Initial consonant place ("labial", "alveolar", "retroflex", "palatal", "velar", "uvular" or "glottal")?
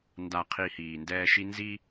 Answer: alveolar